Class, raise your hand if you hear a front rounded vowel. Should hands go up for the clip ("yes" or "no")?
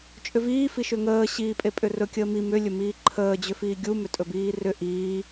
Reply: yes